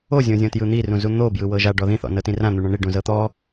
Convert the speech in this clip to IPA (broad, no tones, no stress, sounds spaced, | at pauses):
o zʲ õ zʲ õ t j ɯ n̪ i r ũ z u n̪ o b j ɯ w ɤ ʒ a ɖ ɔ ð ĩ θ ɔ̰ n ɤ t ĩ r ã n̪ u ɳ ɔ̃ ɳ i ɖ ũ z ɤ t̪ ɔ